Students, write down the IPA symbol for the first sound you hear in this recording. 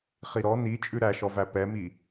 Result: χ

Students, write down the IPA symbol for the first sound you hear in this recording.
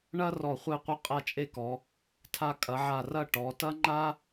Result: ɳ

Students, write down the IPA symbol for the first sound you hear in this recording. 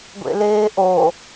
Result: ɡʷ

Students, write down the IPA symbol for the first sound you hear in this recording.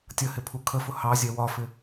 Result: tʲ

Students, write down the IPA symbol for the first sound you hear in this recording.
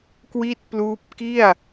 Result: k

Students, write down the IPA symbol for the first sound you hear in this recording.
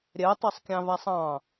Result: ɾʲ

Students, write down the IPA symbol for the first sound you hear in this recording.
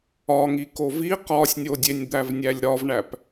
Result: ɒ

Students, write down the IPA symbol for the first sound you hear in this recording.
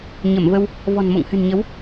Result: ɲ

